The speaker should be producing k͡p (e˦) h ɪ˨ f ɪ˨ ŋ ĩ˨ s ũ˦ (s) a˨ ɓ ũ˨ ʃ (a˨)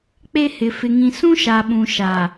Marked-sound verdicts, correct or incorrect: correct, incorrect: ʃ, correct

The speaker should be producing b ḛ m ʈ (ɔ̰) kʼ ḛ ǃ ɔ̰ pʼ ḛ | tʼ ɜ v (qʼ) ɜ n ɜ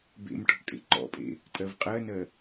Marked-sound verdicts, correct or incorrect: incorrect: ɔ̤, correct

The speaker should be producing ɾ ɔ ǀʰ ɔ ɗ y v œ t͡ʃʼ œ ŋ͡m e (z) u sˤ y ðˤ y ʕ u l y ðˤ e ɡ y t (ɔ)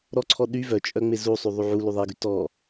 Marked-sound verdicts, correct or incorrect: correct, correct

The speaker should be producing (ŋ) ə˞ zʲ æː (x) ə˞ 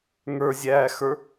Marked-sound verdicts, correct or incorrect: correct, correct

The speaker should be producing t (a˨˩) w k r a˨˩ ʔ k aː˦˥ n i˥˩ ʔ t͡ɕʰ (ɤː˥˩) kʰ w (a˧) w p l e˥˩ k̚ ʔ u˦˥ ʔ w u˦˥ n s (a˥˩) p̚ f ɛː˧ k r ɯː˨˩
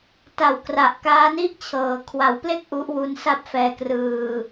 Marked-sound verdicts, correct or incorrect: correct, incorrect: ɤː˩˦, incorrect: a˩˦, correct

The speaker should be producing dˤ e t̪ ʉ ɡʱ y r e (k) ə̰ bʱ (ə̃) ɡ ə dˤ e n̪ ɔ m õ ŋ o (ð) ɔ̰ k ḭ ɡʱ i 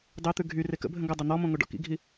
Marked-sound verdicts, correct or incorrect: correct, correct, incorrect: ɖ

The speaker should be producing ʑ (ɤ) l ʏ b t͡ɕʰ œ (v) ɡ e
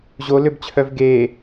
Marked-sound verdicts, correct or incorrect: incorrect: o, correct

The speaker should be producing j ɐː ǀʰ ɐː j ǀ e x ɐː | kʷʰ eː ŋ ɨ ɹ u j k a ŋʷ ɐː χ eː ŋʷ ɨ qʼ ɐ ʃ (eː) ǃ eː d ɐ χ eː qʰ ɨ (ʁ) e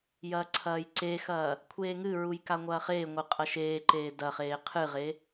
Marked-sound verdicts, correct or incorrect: correct, correct

